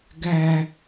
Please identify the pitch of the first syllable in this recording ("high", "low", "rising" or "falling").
low